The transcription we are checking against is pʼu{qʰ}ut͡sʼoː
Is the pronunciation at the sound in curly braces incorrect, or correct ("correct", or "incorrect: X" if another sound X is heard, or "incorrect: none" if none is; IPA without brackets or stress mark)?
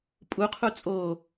correct